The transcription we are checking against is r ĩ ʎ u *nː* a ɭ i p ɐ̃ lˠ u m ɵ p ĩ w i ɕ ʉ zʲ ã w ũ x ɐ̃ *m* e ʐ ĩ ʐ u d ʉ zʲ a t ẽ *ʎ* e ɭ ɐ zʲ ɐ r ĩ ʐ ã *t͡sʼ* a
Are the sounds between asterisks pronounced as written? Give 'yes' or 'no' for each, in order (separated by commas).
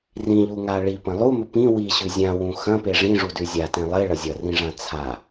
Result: no, no, no, no